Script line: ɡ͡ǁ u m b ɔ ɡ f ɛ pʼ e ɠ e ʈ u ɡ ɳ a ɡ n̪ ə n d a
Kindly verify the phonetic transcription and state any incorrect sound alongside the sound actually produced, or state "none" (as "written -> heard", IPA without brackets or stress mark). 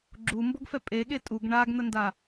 ʈ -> tʼ